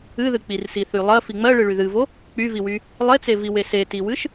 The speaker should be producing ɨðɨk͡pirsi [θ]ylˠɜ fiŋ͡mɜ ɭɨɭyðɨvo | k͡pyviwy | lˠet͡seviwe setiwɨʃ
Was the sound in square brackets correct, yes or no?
yes